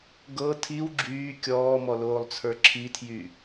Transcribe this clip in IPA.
ɡ ɤ tʰ i w ɡ͡ǁ yː kʲ ɔː m ɔ l oː lˠ t͡sʰ ə˞ ǁʰ i tʰ j y

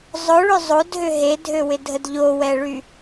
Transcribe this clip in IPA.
zˤ ʊ ɭ ʏ zˤ o d ɦ ʏ ɦ e dʱ ø w ɪ dʱ ə d ʎ o w ɛ ɭ y

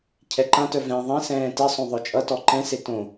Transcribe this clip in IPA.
cʰ ɛ ǃ ã t œ v ɛ̃ ðˤ ɛ̃ s ɛ̃ː t ɪ sˤ õ ðˤ œ t͡ʃʼ ʌ t ɔ ǃ ɛ̃ s e t õ

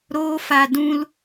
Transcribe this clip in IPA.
ɾ oː˦ f a˧ d ũ˧ l

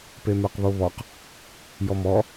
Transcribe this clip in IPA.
p e m ə˞ q β o β ɔ q | j ɔ m ɔ

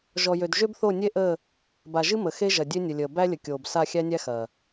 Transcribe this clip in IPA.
ʒ ɔ˨ j ø˨ d ʒ ø˦ b θ o˦˨ nʲ e˦ ʔ əː˦˨ | b a˨ ʒ ɨ˦ m ə˨ x e˦ ʒ ɐ˨ dʲ ø˦ nʲ ə˨ lʲ əː˨ b æ˦ lʲ ə˨ kʲ oː˨ b s a˦˨ xʲ æ˦ nʲ æ˦ x ɐː˨

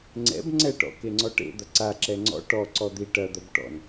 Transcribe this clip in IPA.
ŋ͡ǀ ɛ̰ b ŋ͡ǀ ɛ ʈ ɔ̰ k e ŋ͡ǀ ɔ ʈ ḛ d̪ ɐ ǀ a ǁ ɛ ŋ͡ǀ ɔ̰ ʈ ɔ ǀ ɔ d̪ i ʈ ɐ d̪ ɐ b ʈ ɔ̰ n

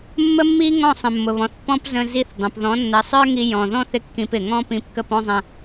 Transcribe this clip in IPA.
mː ə˥ mː i˥ ŋ ɔ̃˥˩ sˤ ə̃˩ mː ʊ˩ β ɔ̃˩ θ p ɔ̃˥ p z ə̃˧ z i˧ θ dˤ ə̃˩ p ð ɔ̃˩˥ nː ə˩˥ sˤ ə˞˥ ŋ i˧ j ɔ̃˩ ð ɔ̃˥ θ ɪ˥ kː ĩ˧ p ɪ˩ ŋ ɔ̃˥ p ĩ˧ p k ə˥˩ p ɔ̃˥ zˤ ə̃˧

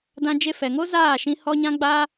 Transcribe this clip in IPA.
d ã˦ d͡ʒ e˦ f ɛ˨ ŋ o˦ z aː˦˨ ʃ ĩ˧ h ɔ˦ ɲ ã˦ ɡ͡b aː˦

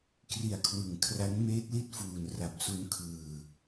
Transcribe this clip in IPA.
k r i˨˩ a̯ kʰ w ɯ˩˦ ŋ kʰ r a˦˥ n m eː˦˥ t̚ l i˥˩ t̚ f uː˨˩ n r a˨˩ p̚ s u˦˥ n kʰ ɯː˧

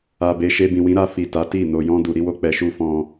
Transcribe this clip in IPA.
a˨ b e˨ ʃ e˧ b ĩ˨ w ĩ˨˦ ɾ a˧ f i˨ t a˨˦ t i˦˨ n o˧ j ɔ̃˦ d u˧ ɾ i˦ w o˦ k͡p ɛ˧ ʃ u˦ f ɔ̃˦

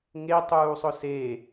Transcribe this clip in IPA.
ŋ e tˤ uː sˤ ʊ s e

